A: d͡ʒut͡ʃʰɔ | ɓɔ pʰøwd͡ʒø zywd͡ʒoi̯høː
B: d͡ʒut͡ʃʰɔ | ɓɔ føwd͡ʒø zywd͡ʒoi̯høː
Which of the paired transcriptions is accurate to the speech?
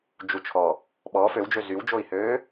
B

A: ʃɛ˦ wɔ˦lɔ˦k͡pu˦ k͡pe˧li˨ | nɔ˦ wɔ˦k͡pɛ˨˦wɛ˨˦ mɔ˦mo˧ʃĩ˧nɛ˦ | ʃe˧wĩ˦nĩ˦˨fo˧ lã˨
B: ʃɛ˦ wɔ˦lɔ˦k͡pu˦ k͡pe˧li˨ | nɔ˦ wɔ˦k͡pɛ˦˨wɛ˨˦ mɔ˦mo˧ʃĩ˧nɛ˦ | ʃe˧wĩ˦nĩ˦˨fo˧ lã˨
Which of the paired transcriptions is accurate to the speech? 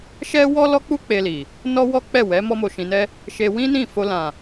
B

